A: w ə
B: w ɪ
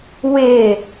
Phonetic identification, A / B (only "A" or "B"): B